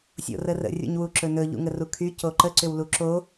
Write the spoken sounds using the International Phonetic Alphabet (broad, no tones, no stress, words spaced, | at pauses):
sʲo̰rərə̰ rʲṵɲwuǁɵnɵ ʎṵŋərukʰy coǃə ǀʏwluǁo